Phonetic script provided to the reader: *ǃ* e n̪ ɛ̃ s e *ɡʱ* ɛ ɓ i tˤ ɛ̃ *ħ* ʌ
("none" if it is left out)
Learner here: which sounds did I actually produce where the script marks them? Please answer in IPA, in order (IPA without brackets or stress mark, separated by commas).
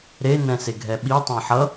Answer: ɾ, ɡʱ, ħ